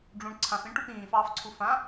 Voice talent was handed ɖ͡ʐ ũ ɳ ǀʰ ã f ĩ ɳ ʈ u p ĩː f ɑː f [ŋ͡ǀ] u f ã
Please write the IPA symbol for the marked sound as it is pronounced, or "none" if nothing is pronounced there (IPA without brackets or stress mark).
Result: ǀʰ